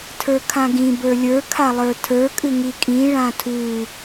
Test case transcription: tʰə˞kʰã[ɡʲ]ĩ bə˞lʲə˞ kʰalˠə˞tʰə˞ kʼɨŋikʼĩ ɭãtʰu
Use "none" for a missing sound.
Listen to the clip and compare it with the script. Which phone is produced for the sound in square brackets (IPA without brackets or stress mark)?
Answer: ɡ